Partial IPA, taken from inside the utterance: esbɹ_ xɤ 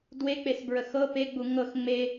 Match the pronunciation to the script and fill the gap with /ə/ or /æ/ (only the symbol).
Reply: ə